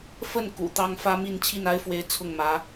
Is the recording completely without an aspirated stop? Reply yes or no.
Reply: no